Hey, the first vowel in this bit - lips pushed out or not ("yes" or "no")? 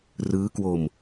no